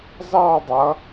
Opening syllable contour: falling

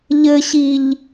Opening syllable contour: low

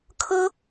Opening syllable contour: high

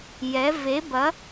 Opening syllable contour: rising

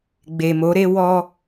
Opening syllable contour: low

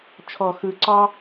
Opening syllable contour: low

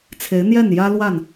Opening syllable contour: rising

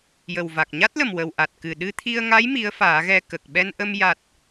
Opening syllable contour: low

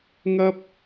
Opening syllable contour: high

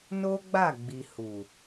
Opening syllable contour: high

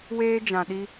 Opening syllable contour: high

